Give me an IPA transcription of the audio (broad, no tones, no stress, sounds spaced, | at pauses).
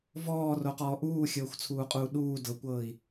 v ɔː r o q ɔː ʔ uː xʲ ɤː xʷ t͡sʰ uː qʼ uː ɗ uː d ɤ kʷ ɤː i̯